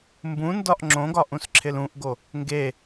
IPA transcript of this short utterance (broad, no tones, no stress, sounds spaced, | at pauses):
m b ũ n d ɒ ʔ ŋ͡ǁ õ ɡ ɒ ʔ ũ s ǁʰ ɪ l ũ ʔ ɡ o | ŋ ɡ e